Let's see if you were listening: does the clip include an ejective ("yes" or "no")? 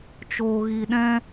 no